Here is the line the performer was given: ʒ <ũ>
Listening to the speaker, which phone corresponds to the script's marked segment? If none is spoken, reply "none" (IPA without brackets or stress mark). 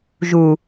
u